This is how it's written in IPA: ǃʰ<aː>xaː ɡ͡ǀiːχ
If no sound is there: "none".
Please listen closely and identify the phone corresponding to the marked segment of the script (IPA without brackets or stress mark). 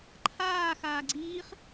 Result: aː